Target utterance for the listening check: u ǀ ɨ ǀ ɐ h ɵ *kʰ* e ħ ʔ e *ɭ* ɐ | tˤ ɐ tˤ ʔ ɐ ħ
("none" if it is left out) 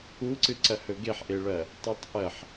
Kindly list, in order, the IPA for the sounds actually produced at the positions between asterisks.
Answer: ɡ, ɭ

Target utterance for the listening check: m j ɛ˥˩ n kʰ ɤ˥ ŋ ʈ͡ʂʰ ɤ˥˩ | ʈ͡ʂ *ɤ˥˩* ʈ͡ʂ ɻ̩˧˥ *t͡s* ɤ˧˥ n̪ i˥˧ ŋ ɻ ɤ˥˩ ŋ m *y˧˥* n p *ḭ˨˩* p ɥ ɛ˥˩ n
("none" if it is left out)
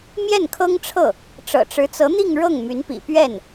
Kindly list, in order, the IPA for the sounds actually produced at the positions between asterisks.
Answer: ɤ̰˨˩, t͡s, y˧˥, ḭ˨˩

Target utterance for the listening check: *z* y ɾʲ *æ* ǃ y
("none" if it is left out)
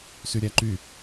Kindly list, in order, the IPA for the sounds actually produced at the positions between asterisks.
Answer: s, æ

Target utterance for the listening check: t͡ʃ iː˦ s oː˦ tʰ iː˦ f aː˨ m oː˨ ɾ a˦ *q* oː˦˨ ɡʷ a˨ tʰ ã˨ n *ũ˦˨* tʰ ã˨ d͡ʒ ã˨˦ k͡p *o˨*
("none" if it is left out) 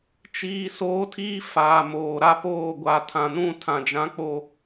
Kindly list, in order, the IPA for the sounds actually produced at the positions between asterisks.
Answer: p, ũ˦˨, o˨

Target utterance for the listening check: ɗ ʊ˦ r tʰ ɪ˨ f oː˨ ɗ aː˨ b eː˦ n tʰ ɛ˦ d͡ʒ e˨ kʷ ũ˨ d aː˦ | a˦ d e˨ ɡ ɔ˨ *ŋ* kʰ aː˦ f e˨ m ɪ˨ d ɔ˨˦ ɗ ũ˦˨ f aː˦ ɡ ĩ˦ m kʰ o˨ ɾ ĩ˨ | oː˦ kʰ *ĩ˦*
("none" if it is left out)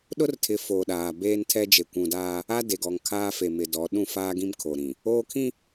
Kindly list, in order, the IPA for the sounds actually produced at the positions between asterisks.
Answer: ŋ, ĩ˦

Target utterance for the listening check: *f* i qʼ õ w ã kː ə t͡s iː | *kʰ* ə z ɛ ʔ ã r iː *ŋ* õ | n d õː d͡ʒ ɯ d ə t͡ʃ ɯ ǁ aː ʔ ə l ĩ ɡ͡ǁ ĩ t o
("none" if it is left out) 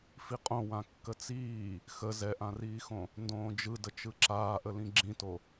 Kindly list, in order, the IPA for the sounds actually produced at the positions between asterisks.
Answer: f, x, x

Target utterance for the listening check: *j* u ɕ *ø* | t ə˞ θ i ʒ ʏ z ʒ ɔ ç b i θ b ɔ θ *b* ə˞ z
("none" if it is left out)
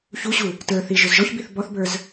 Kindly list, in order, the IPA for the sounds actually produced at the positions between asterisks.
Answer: ç, u, b

